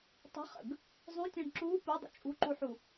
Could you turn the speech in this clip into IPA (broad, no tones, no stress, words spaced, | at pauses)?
tˤə̤χə̰ɡ | zˤũtʲə̃ːɳ ǁuː pudˤə̰ t͡ʃʼṳǃuħu